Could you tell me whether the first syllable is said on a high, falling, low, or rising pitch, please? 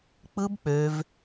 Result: high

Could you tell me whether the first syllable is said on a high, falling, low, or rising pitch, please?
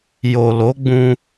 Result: low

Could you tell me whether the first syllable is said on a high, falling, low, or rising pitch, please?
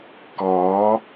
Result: rising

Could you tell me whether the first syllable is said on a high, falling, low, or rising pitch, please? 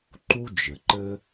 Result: high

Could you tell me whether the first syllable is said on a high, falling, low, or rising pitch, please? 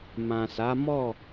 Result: low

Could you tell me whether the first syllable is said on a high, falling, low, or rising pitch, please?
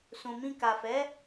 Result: low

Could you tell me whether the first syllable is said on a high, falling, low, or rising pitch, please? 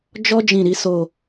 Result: high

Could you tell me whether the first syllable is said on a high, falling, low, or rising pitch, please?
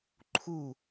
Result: falling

